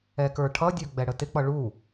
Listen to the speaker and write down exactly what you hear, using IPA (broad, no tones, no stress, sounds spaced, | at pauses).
ɛ k ə˞ ʈʰ ʌ dʲ ə˞ ɡ͡b ɛ ɽ ə t ɪ k͡p ʌ ɭ u